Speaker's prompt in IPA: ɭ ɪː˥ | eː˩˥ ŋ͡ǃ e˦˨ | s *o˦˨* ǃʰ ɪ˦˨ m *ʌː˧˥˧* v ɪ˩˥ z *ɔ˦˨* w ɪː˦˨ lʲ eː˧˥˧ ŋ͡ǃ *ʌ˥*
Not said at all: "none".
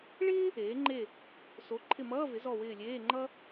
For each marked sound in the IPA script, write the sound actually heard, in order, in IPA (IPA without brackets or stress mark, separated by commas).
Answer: o˩˥, ʌː˧˥˧, ɔ˦˨, ʌ˥